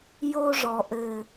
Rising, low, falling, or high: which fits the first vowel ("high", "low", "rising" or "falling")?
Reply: high